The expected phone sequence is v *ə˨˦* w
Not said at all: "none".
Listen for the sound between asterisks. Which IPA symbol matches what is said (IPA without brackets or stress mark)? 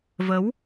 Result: ə˨˦